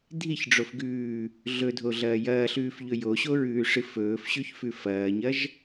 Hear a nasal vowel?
no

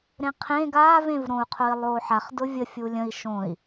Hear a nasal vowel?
yes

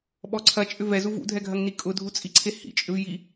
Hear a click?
yes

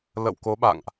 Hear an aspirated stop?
no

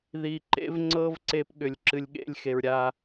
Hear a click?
yes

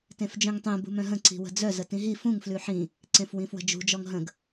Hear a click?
yes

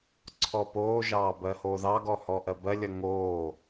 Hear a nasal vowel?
no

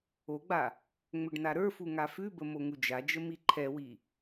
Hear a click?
yes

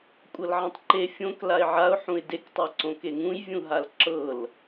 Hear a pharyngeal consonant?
yes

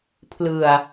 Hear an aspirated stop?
yes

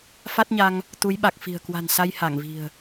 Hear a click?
no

